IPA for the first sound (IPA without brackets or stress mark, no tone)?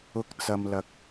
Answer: ʊ